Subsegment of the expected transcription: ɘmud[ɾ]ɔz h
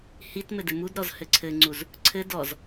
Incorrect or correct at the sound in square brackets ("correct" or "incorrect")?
correct